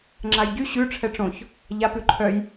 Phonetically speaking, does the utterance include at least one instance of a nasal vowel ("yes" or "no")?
yes